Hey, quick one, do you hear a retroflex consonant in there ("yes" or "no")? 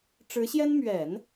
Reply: yes